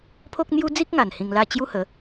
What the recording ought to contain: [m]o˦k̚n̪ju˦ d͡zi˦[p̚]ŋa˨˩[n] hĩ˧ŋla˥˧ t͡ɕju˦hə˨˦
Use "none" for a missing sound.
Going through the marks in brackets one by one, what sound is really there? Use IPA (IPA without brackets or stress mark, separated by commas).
pʰ, k̚, n